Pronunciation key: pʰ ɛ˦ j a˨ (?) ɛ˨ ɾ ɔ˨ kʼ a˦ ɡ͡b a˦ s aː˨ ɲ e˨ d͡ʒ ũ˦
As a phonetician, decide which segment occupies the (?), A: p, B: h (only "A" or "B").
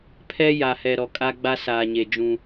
B